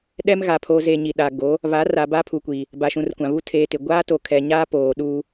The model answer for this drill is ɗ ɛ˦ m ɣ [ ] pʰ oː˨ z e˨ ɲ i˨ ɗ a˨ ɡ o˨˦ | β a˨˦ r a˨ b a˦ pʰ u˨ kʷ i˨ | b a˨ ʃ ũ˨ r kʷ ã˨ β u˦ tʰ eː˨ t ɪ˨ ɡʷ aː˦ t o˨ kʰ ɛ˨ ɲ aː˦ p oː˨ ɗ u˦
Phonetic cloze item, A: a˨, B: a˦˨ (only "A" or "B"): A